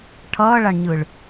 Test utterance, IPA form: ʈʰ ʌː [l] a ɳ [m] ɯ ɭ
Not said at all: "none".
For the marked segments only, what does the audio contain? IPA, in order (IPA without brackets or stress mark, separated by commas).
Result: ɭ, ɲ